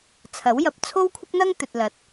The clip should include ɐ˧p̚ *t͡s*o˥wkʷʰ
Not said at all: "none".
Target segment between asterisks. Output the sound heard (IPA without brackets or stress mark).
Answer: t͡sʰ